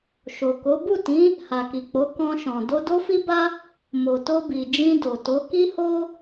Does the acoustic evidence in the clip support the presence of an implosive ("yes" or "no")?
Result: no